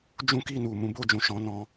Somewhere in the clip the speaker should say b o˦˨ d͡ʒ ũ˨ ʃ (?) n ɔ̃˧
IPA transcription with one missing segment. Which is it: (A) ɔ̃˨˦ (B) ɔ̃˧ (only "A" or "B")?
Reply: A